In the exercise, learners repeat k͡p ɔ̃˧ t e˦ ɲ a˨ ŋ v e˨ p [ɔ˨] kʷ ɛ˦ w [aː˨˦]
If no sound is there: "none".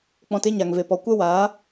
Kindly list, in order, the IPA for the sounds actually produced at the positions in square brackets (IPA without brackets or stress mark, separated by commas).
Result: ɔ˨, aː˨˦